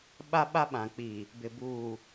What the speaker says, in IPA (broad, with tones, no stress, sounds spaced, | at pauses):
ɓ a˦ ɓ a˦ ɓ ã˨ k͡p iː˨ | b ɪ˨ b uː˨